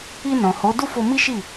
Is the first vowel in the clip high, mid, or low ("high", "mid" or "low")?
high